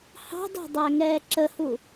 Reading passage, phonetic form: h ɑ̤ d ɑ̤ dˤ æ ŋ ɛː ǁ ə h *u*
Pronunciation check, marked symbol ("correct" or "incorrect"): correct